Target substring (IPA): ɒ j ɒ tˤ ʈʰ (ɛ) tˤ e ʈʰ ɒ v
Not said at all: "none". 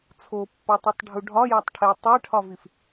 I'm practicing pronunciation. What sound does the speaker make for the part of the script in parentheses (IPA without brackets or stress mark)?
e